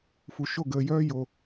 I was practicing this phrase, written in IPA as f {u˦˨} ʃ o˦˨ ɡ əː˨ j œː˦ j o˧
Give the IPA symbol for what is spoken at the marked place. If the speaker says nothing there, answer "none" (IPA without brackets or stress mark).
u˨